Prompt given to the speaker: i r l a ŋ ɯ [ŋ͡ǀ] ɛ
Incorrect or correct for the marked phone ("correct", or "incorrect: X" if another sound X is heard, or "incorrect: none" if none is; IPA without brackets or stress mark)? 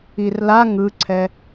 incorrect: ǀʰ